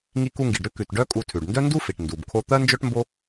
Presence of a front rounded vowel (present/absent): present